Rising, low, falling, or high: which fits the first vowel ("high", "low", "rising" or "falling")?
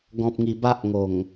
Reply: low